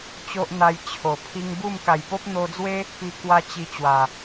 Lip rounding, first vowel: rounded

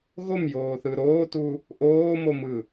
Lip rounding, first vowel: rounded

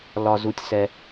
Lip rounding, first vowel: rounded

